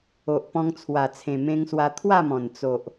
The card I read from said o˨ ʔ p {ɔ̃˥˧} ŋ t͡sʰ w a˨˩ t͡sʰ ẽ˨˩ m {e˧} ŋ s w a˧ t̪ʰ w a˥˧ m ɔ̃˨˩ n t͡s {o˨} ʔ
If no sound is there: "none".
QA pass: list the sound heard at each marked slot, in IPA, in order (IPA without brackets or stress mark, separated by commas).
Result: ɔ̃˧, ẽ˧, o˨